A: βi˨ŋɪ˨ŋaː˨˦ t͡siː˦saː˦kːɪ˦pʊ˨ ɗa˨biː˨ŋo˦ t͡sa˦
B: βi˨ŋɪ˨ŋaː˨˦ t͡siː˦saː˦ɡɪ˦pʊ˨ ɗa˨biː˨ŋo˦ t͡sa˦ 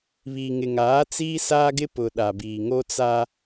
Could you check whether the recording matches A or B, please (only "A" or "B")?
B